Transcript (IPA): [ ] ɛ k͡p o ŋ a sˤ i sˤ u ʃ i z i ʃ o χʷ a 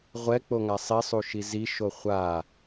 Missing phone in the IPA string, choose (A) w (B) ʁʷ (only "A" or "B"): B